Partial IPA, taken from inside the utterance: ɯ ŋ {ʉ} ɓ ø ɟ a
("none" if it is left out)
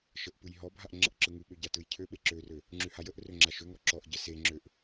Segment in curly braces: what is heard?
ʉ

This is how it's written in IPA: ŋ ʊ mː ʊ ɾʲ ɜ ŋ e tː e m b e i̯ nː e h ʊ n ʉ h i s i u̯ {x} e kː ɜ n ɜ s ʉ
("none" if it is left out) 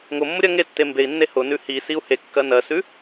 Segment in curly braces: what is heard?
h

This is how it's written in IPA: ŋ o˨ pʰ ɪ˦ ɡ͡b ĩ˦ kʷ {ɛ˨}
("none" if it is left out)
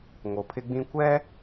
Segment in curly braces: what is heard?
ɛ˦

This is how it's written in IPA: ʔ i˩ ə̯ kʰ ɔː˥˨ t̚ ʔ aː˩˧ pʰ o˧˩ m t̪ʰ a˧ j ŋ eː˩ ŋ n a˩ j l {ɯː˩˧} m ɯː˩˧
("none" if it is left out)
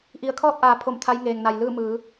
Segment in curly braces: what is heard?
ɯː˥˨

